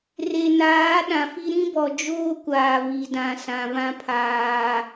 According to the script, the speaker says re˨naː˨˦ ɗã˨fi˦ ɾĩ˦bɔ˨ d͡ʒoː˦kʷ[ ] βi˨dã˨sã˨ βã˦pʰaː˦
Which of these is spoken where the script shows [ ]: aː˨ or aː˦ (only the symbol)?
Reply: aː˨